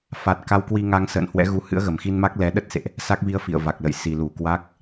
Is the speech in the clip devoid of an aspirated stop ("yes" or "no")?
yes